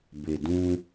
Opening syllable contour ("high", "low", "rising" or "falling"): low